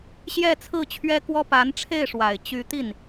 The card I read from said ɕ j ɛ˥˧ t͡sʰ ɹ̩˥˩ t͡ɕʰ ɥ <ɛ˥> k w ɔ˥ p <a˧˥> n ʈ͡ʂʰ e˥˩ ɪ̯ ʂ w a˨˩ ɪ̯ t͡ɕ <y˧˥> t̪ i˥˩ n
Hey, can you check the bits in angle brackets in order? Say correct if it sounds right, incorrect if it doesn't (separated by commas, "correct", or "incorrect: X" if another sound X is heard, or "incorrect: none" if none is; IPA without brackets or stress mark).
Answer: correct, correct, correct